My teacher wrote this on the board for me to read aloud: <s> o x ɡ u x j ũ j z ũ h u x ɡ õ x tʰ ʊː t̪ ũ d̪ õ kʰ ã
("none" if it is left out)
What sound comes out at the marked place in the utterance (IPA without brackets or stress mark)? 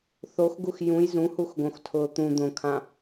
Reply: θ